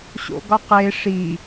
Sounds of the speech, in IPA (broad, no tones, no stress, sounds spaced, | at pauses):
ɕ o̰ ɡ ɒ q e ʂ i